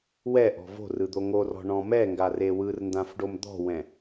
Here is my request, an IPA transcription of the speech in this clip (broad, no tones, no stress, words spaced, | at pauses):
wɛ ʔɔ̤vo̤rɯ d̪oŋorɔ̤ ɳɔ̃mɛŋɡa rewɯr ndãfɖomd̪ɔ̤wɛ̃